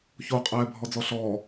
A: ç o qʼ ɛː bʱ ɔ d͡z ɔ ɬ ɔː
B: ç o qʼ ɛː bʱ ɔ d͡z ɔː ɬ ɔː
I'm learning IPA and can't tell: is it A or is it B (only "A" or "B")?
A